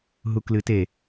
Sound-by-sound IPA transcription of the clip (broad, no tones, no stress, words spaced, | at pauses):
ɦuklɨte